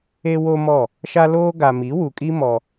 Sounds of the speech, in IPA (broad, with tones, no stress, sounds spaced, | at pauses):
e˦ w o˦ m ɔ˦˨ | ʃ a˦ l oː˦ ɡ a˨ m i˨˦ w u˨ kʼ i˦ m ɔ˦